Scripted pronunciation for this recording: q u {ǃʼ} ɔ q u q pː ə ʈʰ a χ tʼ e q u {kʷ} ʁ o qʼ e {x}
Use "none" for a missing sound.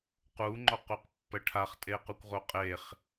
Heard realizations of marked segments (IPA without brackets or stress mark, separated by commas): ŋ͡ǃ, kʷ, χ